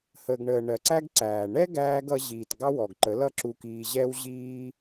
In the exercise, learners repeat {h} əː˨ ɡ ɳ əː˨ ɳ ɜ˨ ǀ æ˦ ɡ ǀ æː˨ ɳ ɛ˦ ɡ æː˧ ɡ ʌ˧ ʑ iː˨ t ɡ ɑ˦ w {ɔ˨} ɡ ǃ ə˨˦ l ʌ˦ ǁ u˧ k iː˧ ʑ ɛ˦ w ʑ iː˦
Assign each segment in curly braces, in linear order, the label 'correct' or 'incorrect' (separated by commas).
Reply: correct, correct